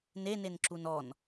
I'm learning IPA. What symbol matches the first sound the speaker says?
n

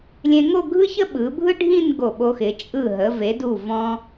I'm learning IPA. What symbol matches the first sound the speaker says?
lʲ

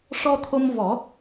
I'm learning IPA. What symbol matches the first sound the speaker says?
ʂ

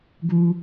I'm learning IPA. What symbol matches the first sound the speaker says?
ɡ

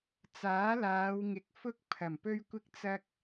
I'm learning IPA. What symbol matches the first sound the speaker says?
t͡s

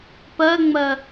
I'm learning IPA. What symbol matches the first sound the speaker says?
p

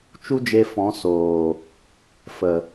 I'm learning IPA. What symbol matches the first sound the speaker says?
t͡ʃ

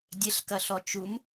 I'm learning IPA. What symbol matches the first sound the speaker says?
dʲ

